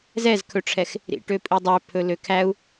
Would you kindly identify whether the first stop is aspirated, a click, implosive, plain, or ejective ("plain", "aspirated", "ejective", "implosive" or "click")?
aspirated